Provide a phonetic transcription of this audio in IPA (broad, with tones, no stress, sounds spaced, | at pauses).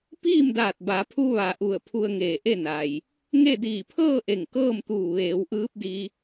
p iː˥˨ m d aː˧˩ t̚ b a˩˧ pʰ u˧ ʋ a˩ ʔ u˧˩ ə̯ pʰ u˧ ə̯ ŋ eː˧˩ ʔ e˥˨ n a˩ j | ŋ e˥˨ d iː˧˩ pʰ ɤː˥˨ ʔ e˧˩ ŋ k ɤː˥˨ m t̪ uː˧˩ ʋ eː˩˧ w ʔ ɯː˧˥ p̚ d i˧